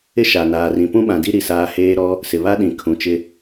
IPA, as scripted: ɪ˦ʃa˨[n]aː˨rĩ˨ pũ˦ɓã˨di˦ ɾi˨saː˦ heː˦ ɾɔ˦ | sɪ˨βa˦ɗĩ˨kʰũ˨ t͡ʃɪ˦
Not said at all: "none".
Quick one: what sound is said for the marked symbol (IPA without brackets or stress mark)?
n